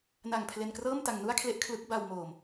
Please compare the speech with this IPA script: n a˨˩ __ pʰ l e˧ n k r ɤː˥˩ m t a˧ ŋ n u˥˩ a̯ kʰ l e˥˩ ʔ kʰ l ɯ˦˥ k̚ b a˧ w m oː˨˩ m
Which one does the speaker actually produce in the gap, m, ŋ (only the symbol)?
ŋ